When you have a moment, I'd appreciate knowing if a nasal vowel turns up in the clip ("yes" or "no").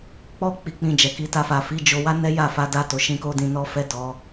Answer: yes